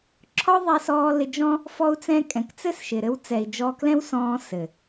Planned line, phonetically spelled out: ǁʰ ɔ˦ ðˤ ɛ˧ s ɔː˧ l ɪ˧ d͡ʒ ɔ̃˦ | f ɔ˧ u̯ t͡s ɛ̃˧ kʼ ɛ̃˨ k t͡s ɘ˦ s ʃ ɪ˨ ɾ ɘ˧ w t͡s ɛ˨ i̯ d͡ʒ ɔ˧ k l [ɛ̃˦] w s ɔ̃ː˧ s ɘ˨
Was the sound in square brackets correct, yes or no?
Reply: yes